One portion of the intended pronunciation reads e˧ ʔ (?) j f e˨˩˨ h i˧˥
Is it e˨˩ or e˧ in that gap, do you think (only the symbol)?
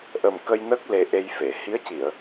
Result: e˧